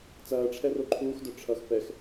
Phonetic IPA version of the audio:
t͡sɐːʈ͡ʂʰɛro ǃʰuːxdœ ʈ͡ʂʰʌx pɛx

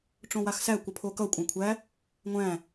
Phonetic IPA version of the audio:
ʈ͡ʂõwaxsæ kʷʌpʰokʌ kʷʼãkʷʰæ | ŋʷæ̃

